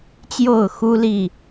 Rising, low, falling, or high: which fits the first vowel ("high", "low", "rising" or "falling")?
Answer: falling